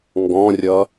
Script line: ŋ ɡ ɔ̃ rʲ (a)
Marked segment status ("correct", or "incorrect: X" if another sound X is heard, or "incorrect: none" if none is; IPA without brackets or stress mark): incorrect: ʌ